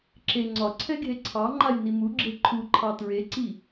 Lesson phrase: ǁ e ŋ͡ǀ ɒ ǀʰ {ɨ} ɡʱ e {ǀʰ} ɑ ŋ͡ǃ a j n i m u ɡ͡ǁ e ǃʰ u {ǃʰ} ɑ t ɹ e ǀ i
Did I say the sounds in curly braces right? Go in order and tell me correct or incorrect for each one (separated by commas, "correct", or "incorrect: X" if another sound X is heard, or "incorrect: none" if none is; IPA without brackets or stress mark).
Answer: incorrect: ɛ, correct, correct